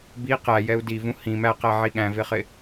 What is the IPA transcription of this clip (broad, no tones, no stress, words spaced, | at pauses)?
bi qæjɛu̯ divũ hĩ mæqæʕi ɠæ̃vɪχɪ